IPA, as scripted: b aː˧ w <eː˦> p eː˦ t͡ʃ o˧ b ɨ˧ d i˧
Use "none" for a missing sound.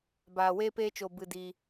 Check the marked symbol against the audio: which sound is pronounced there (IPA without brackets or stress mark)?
eː˦